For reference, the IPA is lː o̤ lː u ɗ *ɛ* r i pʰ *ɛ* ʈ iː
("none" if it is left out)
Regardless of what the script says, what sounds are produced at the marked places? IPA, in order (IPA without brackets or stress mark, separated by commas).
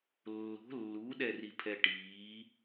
ɛ, ɛ